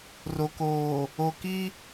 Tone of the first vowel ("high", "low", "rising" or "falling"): low